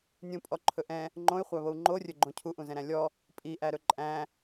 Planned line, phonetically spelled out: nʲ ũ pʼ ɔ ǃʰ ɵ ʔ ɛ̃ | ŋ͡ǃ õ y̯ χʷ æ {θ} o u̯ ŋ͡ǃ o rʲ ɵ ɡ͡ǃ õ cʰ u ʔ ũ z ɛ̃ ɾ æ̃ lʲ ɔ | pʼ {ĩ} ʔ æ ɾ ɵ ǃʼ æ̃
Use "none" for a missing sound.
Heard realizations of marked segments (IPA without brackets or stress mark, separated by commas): β, i